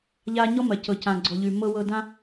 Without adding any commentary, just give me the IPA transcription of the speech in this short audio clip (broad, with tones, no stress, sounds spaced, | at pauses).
ʎ a˦ ɲ ɔ˥ m ɐ˨ c ɤ˨ c ã˨ ɡ͡ǀ ɔ˨ ʎ ʉ˨ m ɤ˦ w ɤ˦ d ã˥